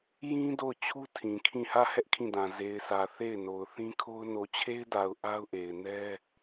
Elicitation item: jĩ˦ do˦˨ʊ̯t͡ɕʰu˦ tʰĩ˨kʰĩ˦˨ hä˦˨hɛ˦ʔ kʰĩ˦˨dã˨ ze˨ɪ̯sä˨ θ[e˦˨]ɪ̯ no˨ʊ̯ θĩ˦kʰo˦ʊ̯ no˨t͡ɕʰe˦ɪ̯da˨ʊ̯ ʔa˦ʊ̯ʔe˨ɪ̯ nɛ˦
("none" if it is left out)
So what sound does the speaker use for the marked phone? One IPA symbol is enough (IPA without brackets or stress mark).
e˦˨